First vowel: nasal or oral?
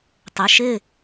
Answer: oral